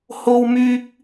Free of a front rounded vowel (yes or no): no